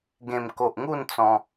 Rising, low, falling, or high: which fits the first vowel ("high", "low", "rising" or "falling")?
low